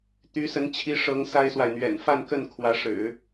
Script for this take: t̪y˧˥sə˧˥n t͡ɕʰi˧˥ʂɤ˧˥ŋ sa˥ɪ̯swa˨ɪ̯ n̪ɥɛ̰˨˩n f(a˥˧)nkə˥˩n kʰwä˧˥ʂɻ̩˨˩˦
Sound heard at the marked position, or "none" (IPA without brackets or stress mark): a˥˧